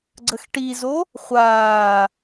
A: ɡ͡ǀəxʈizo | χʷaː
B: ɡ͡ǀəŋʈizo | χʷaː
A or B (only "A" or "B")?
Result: A